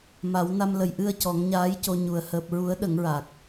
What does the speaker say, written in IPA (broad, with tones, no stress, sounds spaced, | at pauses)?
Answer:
m a˨˩˦ w n a˧ m l ə˨˩ j ʔ ɨ˧ ə̯ c ɔ˨˩˦ ŋ ɲ aː˧˥ j c o˧ ɲ u˨˩ ə̯ h əː˨˩ p̚ ɹ u˨˩˦ ə̯ ɗ ə˨˩˦ ŋ ɹ a˨˩ k̚